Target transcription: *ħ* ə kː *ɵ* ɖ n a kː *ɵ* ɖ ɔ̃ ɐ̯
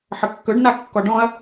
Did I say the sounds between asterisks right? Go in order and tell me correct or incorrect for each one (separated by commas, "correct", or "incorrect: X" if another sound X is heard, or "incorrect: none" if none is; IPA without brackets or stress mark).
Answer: correct, correct, incorrect: ɔ